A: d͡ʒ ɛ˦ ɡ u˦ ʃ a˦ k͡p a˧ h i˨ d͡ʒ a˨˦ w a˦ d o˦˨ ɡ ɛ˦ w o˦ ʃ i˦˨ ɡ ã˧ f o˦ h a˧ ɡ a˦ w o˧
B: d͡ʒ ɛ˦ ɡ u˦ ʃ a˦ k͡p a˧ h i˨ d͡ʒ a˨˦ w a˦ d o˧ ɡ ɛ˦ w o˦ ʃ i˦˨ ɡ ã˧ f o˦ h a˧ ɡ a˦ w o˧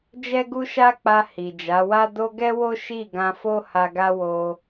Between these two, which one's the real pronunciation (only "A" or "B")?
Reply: B